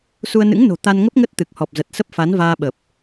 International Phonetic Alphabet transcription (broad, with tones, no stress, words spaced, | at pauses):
su˧ə̯nɨ̰˧˥ŋno̤˨˩ t̪a˧nŋə˦˥p̚ŋə˦˥t̚ t̪ɨ˨˩k̚hɔ˨˩p̚zə˨˩t̚sə˦˥p̚ fa˨˦nvaː˧ɓə˨˩p̚